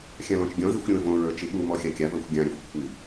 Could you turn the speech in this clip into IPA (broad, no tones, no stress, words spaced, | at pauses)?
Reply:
xʲãlɔ̃t͡ʃɡʲɔ̃zixʷ ɾʲõə̯võɹə˞ t͡ʃiɓumɔ xʲakʲavə˞xʷ ɡʲãɾʲə˞xʷ kʷʰi